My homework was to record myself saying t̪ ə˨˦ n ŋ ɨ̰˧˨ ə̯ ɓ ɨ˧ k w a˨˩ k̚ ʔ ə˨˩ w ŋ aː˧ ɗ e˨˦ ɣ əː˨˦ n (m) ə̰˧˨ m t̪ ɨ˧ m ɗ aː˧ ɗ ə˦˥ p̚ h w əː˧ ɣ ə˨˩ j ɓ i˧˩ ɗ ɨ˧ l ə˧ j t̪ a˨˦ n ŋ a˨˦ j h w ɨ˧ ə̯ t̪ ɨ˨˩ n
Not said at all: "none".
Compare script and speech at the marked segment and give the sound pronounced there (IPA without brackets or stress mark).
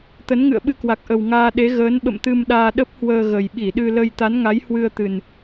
ɓ